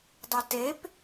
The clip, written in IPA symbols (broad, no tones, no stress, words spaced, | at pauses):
dˤitep